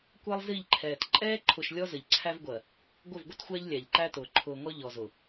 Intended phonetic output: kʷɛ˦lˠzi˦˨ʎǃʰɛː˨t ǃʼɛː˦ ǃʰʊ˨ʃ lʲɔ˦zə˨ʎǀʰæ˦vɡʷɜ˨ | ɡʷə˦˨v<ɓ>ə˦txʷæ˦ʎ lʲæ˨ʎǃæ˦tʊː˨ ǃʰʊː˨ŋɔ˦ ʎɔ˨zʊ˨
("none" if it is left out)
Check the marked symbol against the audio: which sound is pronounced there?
ɡʷ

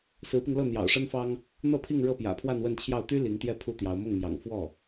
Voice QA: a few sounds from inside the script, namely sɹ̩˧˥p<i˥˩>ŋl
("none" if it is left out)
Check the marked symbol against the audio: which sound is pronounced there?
i˧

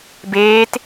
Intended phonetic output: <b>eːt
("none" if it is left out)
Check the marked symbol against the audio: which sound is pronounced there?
b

